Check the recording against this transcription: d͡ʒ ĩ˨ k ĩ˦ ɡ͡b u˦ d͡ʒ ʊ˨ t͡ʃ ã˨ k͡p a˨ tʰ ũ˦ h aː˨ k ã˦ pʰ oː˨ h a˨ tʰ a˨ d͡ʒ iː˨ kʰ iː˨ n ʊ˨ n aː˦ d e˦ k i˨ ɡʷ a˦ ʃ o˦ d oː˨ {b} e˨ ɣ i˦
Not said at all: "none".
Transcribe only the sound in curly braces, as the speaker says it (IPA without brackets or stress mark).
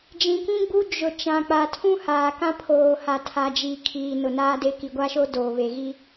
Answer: β